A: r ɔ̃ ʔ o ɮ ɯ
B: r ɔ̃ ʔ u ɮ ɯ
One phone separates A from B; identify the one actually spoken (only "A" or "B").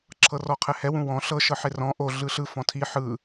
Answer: A